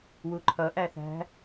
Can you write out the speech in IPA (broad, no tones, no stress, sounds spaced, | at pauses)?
w u ǃʰ ʌ ʔ æ θ æ̤